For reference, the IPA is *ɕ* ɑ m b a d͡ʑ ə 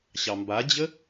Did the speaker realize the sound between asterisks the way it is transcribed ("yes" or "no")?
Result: yes